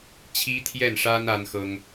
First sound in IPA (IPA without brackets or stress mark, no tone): t͡ɕʰ